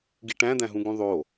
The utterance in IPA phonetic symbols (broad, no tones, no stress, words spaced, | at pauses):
ɡiʈæ̃dæ̃ ɦũɡũðˤo